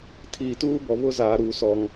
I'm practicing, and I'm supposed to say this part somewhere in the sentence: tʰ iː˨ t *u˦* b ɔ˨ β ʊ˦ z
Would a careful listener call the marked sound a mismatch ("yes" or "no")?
yes